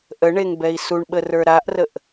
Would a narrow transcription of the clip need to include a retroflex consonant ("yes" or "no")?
yes